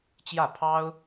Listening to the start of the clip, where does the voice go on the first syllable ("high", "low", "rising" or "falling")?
falling